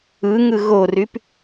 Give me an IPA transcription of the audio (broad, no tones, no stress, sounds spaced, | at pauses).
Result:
ɯ ŋ ɯ ɣ o r y p